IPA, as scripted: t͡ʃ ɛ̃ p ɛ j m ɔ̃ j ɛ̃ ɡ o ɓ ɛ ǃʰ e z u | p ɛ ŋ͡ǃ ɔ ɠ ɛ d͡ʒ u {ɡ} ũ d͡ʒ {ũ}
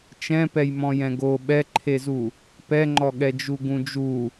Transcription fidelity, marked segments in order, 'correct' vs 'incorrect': correct, incorrect

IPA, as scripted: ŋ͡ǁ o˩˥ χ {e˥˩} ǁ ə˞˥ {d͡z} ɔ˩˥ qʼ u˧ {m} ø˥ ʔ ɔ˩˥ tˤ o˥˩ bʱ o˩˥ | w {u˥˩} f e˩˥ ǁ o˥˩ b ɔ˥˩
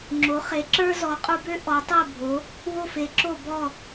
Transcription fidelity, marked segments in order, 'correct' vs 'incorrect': incorrect, incorrect, incorrect, incorrect

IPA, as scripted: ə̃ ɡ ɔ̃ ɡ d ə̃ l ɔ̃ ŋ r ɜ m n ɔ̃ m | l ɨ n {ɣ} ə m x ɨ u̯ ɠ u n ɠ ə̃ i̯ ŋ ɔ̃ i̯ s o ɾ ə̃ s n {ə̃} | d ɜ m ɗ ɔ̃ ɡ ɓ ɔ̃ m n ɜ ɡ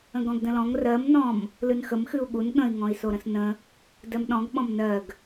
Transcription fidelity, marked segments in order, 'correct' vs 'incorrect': incorrect, correct

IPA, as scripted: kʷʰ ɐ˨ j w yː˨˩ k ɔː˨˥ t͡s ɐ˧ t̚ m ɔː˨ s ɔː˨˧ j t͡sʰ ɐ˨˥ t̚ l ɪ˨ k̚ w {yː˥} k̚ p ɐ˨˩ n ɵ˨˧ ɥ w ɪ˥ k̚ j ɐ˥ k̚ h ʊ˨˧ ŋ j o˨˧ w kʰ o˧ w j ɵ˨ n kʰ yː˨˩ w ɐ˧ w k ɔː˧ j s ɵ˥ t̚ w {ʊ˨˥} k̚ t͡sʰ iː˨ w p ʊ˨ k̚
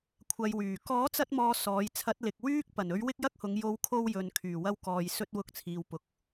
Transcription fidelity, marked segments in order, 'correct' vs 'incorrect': correct, incorrect

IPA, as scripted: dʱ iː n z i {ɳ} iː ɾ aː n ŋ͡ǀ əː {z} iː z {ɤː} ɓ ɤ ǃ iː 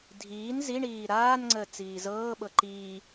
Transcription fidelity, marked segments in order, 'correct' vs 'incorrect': correct, incorrect, correct

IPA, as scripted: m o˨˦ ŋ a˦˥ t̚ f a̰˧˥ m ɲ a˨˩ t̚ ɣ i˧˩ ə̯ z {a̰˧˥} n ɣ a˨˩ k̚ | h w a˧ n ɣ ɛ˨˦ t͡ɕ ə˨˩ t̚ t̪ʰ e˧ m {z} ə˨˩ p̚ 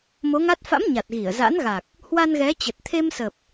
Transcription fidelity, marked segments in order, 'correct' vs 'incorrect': correct, incorrect

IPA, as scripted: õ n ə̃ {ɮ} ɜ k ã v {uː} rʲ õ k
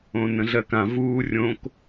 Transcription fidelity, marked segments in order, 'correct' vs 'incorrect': correct, correct

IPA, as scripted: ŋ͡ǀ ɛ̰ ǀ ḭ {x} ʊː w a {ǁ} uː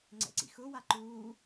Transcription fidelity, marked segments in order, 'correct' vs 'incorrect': correct, incorrect

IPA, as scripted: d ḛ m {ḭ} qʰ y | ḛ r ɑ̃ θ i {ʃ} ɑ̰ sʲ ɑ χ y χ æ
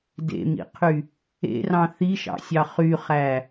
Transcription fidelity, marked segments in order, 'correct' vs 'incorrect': correct, correct

